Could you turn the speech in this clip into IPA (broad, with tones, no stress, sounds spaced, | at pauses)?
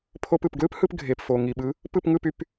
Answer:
pʰ o˧ p ɯ˩ p ɡ l ɯ˥ p h ɯ˧ p ɡʱ e˩ p f o˩ ŋ i˩ ɓ ɯ˩˥ | p ɯ˥˩ p ŋ ɯ˥˩ p y˩ p